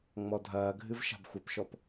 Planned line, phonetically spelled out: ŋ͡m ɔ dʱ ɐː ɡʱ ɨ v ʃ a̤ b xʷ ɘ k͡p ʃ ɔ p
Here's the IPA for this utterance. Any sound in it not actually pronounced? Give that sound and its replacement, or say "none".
k͡p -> p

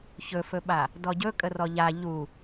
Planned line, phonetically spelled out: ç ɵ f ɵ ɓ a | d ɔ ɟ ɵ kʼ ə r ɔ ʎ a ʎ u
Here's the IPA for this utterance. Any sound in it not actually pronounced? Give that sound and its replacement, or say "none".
none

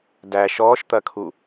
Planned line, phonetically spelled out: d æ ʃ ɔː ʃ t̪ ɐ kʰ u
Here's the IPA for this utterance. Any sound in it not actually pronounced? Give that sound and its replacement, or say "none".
none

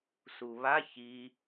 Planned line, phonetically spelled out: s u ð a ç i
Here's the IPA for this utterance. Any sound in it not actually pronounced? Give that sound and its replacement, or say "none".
ð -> β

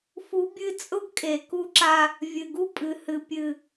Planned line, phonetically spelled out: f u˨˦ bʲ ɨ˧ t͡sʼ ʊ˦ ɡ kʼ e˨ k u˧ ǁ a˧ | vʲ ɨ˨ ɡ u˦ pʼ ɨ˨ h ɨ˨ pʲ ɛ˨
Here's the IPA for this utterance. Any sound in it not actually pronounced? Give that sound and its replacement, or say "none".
ɛ˨ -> ɨ˨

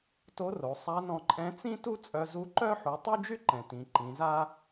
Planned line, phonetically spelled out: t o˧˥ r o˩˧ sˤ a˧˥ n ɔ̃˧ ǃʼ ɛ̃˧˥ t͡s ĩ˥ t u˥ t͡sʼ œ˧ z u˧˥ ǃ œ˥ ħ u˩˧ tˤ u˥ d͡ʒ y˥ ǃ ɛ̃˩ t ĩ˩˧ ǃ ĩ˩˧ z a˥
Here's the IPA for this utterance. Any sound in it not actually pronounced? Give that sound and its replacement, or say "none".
none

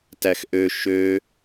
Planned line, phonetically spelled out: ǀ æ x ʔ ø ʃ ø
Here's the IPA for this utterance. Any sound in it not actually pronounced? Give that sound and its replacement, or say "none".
ǀ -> t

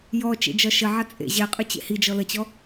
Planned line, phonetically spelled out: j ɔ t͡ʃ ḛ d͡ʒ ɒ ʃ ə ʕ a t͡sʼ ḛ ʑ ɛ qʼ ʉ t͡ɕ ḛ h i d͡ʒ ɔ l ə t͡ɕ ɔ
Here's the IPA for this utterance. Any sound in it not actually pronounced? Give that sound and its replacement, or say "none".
none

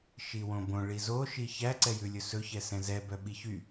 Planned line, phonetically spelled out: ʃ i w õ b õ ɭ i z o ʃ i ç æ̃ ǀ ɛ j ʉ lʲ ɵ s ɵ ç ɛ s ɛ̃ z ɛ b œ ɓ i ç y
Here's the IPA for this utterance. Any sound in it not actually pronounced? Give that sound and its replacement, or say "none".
æ̃ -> æ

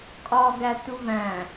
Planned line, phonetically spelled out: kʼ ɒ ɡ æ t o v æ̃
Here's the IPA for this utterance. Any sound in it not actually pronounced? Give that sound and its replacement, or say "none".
o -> u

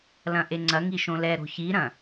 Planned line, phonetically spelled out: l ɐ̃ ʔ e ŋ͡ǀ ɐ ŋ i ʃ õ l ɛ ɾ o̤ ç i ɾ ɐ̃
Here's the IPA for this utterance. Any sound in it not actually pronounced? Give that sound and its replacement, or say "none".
none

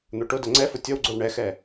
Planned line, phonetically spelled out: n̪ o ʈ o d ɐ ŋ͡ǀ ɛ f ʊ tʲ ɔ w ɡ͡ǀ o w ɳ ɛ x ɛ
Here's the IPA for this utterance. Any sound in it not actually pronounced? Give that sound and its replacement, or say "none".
none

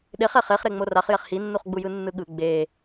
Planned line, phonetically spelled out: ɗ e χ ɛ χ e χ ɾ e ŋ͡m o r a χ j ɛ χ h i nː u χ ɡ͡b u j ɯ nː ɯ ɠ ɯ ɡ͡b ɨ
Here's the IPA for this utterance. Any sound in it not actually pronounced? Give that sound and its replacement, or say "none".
ɨ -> e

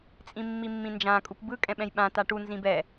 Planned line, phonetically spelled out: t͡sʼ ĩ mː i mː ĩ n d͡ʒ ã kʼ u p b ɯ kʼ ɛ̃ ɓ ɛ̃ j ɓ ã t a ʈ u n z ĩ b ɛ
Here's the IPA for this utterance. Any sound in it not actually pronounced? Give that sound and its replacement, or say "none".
none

